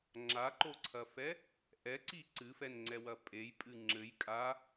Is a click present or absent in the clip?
present